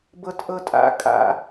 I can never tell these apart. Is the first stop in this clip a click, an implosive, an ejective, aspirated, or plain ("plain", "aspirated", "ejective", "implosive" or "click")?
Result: plain